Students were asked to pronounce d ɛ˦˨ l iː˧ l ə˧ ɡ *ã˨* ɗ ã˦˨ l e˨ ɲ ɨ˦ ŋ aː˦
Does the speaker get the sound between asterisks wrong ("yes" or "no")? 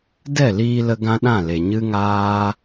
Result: yes